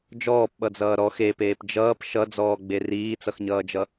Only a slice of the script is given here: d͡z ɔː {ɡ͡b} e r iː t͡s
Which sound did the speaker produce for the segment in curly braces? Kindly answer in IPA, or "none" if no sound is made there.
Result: ɡ͡b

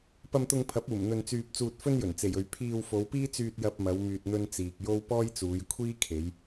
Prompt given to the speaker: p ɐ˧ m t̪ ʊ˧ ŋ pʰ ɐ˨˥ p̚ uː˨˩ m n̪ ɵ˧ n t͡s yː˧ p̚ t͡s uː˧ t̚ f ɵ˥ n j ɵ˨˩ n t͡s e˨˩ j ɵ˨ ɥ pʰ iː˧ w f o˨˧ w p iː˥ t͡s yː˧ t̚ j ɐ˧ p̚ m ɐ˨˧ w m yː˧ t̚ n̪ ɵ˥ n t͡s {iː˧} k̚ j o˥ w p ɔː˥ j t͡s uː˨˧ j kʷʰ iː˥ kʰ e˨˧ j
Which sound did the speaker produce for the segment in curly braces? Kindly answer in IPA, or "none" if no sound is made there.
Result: iː˨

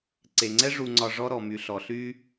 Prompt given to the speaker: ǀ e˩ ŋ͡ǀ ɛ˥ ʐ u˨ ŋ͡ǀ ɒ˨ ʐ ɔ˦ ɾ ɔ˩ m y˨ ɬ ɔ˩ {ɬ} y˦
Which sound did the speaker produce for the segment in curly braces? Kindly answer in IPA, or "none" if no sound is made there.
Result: ɬ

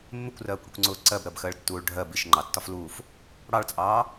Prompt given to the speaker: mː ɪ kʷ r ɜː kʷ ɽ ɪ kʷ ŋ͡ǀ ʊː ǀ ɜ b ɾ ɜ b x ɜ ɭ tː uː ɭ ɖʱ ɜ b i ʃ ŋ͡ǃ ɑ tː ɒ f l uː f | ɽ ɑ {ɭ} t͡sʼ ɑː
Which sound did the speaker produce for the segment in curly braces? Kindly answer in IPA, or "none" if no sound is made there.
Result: ɭ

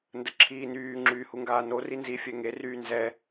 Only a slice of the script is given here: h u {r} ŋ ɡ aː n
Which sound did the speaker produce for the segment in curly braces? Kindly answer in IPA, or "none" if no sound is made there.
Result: none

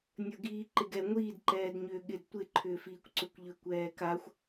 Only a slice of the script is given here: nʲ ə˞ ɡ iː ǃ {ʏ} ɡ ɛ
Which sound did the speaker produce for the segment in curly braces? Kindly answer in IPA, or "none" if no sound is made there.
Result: ɪ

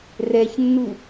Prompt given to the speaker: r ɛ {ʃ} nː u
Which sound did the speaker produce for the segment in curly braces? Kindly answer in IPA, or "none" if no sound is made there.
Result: ç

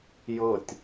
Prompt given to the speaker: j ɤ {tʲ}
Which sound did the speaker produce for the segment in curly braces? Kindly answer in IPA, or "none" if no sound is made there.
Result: tʲ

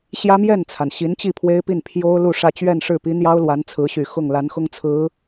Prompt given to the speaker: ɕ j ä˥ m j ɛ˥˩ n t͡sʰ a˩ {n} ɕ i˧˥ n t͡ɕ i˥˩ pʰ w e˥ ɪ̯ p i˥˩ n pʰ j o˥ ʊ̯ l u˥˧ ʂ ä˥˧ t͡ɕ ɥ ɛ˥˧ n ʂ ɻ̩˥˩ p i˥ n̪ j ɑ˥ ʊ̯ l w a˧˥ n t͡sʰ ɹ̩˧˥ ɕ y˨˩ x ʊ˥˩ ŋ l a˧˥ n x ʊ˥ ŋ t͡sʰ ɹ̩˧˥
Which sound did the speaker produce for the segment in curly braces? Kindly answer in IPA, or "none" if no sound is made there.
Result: n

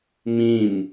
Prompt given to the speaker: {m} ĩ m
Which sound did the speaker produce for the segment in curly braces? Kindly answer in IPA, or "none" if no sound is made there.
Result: m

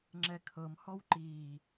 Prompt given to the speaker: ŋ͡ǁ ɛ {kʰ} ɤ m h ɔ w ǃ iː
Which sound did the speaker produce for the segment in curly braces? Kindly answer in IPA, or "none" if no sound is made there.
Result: kʰ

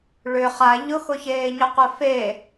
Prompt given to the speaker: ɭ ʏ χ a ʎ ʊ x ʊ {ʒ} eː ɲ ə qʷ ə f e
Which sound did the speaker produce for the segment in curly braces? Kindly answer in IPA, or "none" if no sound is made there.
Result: ç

